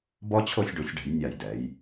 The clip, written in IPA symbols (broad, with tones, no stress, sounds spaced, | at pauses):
b ɔ˥ t͡ɕʰ o˥˧ sʲ ɖ u˩˧ sʲ ɖ ɛ̤˩˧ j nʲ a˧˩ j d ɛ˩˧ j